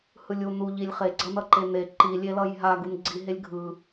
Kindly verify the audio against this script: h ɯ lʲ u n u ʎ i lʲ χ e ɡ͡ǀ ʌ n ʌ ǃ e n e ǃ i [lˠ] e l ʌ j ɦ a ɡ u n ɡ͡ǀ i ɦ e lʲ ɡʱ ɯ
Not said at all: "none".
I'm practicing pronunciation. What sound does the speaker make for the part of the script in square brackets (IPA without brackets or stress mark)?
lʲ